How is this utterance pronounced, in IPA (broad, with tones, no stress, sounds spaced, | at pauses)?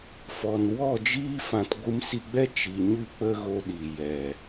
f ɔ˨ n w ɔ˦˨ d͡ʒ iː˧ f ã˨ t ɡʷ ɨ˧ m s i˧ ɡ͡b ɛ˦ t͡ʃ i˨ ɲ ɨ˦˨ k͡p ə˦ ɣ o˧ ɗ i˨ j ɛ˨